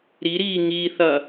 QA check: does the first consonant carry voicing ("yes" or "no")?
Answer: yes